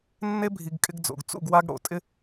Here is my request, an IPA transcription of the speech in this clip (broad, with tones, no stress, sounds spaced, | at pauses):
nː e˦ bʱ i˨ ɡ kʼ ɪ˦ ɡ d͡z o̰˨ ɡ t͡s ṵ˦˨ ɡ w a˦ ɡ ɽ o̰˨˦ tʼ ɪ˦